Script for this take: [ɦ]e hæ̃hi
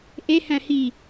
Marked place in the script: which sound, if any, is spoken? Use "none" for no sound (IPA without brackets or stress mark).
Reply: ʔ